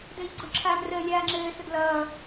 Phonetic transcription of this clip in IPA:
d ɘː ʎ ɡ͡ǀ ʊ ǁʰ aː m r əː lʲ aː ŋ͡ǁ ɘː s ʊ d l ʌː

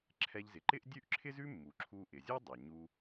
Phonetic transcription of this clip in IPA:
ǁʰ ɛ˧ ʎ z ɪ˩ ǃ ɪ˥ ʔ dʲ ʉ˥ ʔ ǁʰ ɪ˥ z ʉ˥ mː u˩ ǁʰ u˧ ʔ ɪ˩ zʲ u˥ dˤ ɛ˩ ɲ u˧

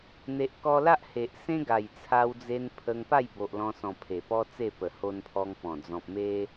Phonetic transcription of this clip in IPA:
n̪ e˨ ʔ k ɔ˧ l a˦ ʔ h e˨ ʔ s ẽ˦ ɡ a˨˩ j t͡sʰ a˧ w d͡z e˧ n pʰ ə˧ ŋ p a˥˧ j b o˨ ʔ l ɔ̃˧ s ɔ̃˨˩ pʰ e˨˩ p ɔ˦ t͡s e˥˧ p ə˨˩ h o˧ n pʰ ɔ˧ ŋ p ɔ̃˨˩ d͡z ɔ̃˨ p̚ m e˧

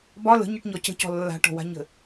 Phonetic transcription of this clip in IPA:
b ɒ l ə̤ ɲ e ʈ ɲ ɔ c ə̤ c ɔ̤ lː a̤ ʈ ɔ̤ w a̤ ɲ ə̤

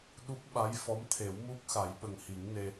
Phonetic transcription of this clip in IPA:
ɗ u˦˥ k̚ ɓ a˧˥ j f ɔ˧˥ m t̪ʰ e˨˩˦ w m u˦˥ k̚ x a˨˩˦ j ɓ ə˨˩ ŋ h i˨˩˦ ŋ n e˧

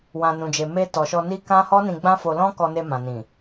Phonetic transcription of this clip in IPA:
w ã˨ n ũ˨ d͡ʒ e˨ m e˧ t ɔ˨ ʃ ɔ˧ n i˦ k ã˦ h ɔ˦ n ĩ˧ ɡ͡b ã˦ f o˧ l ɔ̃˦ k ɔ˧ n e˧ m ã˨ n ĩ˨

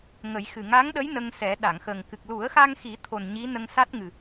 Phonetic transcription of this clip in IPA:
ŋ ə˨˩˦ j x ɨ˨˩ ŋ a˧˥ ŋ ɗ ə˧˥ j n ə˧ ŋ s ɛ˨˩˦ ɗ a˨˩˨ ŋ x ə˨˩ ŋ k ɨ˨˩ k̚ l u˨˩˦ ə̯ x a˧ ŋ x i˨˩˦ t̪ʰ o˨˩ n ɲ i˧˥ n ə˧ ŋ s a˦˥ t̚ ŋ ɨ˨˩

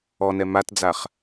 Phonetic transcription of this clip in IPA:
ɔ n ɛ m a t d͡z a χ

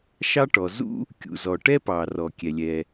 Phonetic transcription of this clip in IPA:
ʃ ɑ˥ ʈ ɔ˩ z ṵ˥ | kʲ ṵ˩ z ɔ˩ ʈ ɛ˥ p ɑ˩ r ɔ˩ kʲ ɛ˩ lʲ ɛ˩

